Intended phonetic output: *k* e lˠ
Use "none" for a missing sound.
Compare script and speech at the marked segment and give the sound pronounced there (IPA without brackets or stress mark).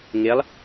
ŋ